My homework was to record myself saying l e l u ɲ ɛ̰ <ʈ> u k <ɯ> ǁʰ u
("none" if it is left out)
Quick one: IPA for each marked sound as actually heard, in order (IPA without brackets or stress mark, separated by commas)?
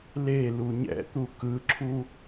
t̪, ɯ